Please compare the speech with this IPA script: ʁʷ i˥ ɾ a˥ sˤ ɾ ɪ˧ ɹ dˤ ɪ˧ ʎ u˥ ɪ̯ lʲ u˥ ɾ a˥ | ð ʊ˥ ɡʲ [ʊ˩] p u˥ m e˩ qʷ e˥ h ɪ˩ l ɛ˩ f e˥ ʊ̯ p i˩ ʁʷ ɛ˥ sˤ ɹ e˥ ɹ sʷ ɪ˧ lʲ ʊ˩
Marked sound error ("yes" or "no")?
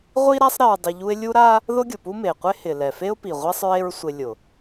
no